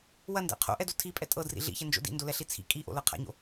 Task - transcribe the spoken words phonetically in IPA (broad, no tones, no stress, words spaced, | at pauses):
wɐndɛ̰ qʰo̰ʔɛdo tʰipʼɛ tʼɤdrḭ ɮḭçɛnd͡ʒo̰ dḭndolɛɬi t͡sʰḭ kʼiʔo̰lɤ qʰa̰ɲo̰